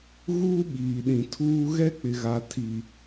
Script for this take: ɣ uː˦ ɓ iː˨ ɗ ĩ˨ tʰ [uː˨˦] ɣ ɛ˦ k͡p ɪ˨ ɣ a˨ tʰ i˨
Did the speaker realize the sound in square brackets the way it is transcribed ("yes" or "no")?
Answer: no